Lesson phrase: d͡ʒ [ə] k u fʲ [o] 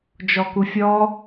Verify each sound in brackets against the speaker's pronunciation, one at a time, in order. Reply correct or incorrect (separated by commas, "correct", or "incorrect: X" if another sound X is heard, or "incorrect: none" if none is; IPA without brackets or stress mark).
incorrect: ɔ, incorrect: ɔ